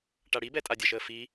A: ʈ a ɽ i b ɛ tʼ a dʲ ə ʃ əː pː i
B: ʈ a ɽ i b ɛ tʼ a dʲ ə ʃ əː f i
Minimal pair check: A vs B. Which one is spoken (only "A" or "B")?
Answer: B